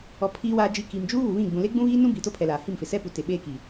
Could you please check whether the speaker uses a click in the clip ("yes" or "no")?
no